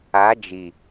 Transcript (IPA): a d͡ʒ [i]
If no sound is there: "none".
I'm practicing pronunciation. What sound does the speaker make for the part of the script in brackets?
i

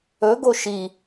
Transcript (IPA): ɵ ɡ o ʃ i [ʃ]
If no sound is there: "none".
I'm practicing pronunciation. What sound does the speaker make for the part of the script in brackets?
none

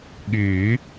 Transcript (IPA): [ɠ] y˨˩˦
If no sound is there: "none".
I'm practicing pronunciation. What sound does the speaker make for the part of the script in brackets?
ɠ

